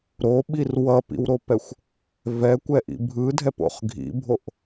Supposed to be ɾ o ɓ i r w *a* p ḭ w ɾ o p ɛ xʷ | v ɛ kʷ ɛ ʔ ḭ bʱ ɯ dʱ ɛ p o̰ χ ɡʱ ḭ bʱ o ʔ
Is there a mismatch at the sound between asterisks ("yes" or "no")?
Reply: yes